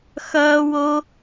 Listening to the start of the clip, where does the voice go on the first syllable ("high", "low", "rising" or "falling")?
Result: high